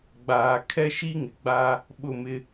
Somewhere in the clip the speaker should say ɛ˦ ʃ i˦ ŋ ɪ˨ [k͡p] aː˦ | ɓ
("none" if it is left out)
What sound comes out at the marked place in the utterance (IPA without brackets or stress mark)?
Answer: ɡ͡b